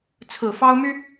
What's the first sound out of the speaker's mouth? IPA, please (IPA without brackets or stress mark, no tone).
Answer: t͡sʰ